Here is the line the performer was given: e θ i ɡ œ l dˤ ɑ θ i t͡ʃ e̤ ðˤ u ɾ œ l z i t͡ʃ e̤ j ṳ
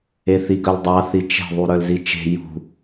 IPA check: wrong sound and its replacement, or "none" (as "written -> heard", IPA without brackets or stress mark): none